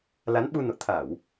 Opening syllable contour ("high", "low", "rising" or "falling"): rising